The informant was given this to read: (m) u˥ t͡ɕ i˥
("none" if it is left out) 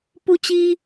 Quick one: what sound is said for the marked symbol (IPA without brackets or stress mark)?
p